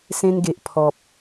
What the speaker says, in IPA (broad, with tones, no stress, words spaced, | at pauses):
sẽ˧nɡe˨ʔpʰɔ˨p̚